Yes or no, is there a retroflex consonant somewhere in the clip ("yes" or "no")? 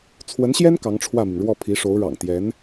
yes